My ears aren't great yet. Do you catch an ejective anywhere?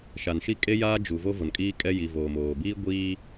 yes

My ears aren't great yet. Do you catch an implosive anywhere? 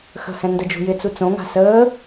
no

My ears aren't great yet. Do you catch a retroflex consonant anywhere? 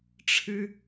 yes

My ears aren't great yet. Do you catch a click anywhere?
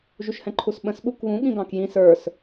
yes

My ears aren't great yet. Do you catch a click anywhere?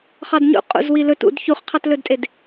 no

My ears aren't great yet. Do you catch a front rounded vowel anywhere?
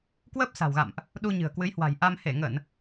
no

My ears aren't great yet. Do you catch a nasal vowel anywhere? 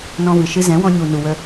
yes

